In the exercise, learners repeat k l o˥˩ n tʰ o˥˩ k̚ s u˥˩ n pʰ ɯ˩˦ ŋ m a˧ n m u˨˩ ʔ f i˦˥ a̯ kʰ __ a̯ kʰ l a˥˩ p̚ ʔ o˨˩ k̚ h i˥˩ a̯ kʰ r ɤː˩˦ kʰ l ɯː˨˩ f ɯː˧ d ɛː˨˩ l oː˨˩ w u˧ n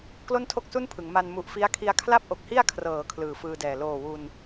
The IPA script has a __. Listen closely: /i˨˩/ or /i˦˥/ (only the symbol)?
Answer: i˦˥